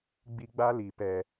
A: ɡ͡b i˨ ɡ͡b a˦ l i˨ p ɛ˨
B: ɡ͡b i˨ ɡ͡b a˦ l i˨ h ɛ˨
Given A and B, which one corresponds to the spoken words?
A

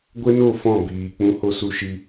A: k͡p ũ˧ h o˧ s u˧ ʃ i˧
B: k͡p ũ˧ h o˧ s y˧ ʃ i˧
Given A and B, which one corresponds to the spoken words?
A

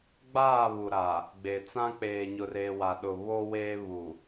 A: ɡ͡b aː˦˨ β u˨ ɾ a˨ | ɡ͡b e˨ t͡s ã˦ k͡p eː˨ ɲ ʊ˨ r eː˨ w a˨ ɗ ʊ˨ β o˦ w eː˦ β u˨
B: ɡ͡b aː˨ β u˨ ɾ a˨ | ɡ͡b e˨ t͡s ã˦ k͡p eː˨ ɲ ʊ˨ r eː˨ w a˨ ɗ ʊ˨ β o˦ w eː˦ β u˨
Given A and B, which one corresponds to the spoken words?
A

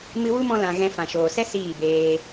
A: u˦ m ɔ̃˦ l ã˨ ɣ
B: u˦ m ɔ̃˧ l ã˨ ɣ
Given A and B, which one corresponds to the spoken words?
B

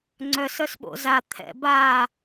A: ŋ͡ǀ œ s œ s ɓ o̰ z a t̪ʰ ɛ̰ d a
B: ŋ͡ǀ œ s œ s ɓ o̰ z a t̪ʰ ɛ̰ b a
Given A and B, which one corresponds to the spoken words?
B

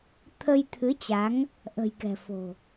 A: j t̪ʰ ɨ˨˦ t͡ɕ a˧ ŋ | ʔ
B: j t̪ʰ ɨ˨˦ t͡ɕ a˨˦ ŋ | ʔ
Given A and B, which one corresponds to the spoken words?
B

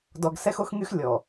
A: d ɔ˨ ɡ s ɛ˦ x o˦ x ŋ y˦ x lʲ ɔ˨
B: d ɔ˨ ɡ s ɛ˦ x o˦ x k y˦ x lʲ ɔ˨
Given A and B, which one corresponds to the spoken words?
A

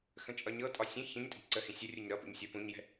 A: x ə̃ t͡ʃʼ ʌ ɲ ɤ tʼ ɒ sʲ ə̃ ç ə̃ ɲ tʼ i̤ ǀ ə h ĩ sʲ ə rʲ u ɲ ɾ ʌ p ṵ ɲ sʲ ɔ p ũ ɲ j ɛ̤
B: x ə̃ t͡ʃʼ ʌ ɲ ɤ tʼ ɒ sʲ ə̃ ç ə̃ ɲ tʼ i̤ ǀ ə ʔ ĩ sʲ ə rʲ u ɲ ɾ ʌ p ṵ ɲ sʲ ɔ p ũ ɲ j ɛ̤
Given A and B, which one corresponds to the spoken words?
A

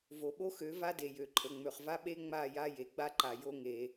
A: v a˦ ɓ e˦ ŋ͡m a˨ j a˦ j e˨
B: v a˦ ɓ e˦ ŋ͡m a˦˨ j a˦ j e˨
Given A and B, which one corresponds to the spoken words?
B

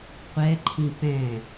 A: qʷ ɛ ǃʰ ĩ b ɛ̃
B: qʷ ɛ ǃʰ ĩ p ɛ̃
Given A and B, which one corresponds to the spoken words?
B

